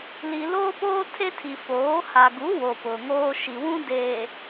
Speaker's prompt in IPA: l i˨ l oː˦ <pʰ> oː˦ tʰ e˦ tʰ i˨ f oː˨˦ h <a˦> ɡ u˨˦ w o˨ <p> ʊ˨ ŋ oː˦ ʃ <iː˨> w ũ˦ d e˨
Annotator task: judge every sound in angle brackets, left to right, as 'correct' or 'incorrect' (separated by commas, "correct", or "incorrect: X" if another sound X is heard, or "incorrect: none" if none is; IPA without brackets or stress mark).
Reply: incorrect: p, incorrect: a˨, correct, incorrect: i˨